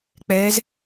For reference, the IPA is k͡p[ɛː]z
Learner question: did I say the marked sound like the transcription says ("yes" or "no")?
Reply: yes